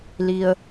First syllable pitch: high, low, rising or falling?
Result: low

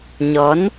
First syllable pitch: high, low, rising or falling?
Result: rising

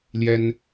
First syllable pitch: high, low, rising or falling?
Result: high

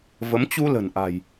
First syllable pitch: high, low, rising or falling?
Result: rising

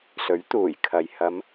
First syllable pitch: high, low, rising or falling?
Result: rising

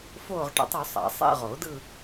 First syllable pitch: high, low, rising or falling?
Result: falling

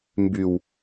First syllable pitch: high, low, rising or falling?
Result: low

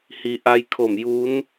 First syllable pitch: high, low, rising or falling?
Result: low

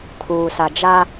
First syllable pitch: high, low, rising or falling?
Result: low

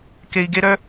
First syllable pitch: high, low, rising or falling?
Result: high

